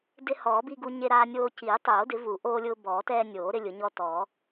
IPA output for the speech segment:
d ɪ˦ h ɔː˨˩˦ b i˦ ɡ u˦ ɲ e˦ ɾ aː˦ nʲ oː˦ c iː˨˩˦ tˤ oː˨˩˦ d ɪ˨˩˦ v u˨˩˦ ʔ oː˦ lʲ ʊː˦ b ɔː˨˩˦ t ɛː˦ nʲ oː˨˩˦ ɾ ɪ˦ lʲ ʊ˨˩˦ ɲ ɔ˦ t ɔː˨˩˦

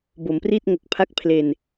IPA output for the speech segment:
b o˩˦ m p r i˥˩ t̚ ŋ o˨˩ k̚ pʰ a˦˥ k̚ pʰ l e˧ n

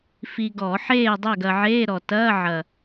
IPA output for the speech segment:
f i˧ ɡ ɔ˧˩˧ ħ eː˥˨ dˤ æ˥˨ ɡ ɐ˧ ʕ eː˧˥˧ ɾ ɔ˨˩ t ɐː˧˥˧ ʕ ɐ˨˩

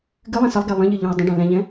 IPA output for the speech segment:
ɡ ɨ lˠ ɛ̃ s ə lˠ ɡ ɛ lˠ ə̃ ʎ ɨ ʎ ɛ̃ i̯ dˤ ə̃ ɖ ɛ̃ l ɛ̃ ʎ ɛ̃

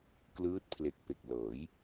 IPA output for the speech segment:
k l ɯː˦˥ t̚ pʰ l e˨˩ k̚ p e˨˩ k̚ l ɤː˩˦ j

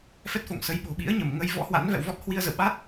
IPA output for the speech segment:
f ɛ˦˥ t̚ f o̰˧˨ ŋ s ə˨˦ j ɓ o̤˨˩ ɓ ḭ˧˥ ə̯ ɲ ə˧˩ m ŋ ə˧ j v ɔ̰˧˥ h w a̰˧˥ n v ɛ̰˧˨ w v ɔ˦˥ t̚ h w i˧ ə̯ z ə̰˧˨ w ɓ a˦˥ t̚

